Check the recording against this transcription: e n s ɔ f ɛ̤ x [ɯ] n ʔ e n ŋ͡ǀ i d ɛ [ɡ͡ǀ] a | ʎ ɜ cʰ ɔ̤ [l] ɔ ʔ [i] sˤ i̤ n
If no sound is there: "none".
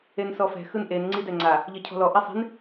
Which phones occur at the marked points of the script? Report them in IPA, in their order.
ɯ, ŋ͡ǀ, l, i

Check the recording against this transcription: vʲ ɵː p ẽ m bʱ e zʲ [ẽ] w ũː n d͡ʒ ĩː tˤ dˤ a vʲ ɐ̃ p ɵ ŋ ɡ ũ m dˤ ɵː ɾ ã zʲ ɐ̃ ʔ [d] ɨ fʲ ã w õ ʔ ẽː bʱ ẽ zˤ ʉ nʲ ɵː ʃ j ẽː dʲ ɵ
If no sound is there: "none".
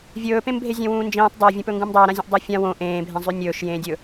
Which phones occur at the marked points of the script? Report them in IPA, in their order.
ẽ, dˤ

